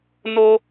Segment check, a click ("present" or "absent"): absent